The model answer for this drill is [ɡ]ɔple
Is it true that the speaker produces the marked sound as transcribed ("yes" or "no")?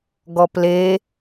yes